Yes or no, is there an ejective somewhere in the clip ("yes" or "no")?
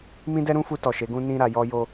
no